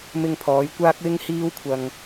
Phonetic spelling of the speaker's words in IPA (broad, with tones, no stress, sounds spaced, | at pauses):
m ɪ˧ ŋ pʰ ɔː˨˧ j kʷ aː˥ k̚ w ɪ˥ ŋ h iː˥ w kʷʰ ɐ˧ ŋ